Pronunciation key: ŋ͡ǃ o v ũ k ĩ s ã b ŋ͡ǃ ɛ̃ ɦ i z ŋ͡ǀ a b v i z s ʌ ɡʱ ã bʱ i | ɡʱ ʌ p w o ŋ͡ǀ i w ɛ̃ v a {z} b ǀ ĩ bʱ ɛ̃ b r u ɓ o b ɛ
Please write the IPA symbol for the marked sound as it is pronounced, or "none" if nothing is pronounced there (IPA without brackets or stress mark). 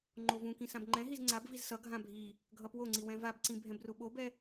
none